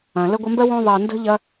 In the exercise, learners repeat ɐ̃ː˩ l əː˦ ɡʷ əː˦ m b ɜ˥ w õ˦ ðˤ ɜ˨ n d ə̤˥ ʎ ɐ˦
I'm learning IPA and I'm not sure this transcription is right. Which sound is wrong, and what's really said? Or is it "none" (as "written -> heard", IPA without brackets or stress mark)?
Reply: none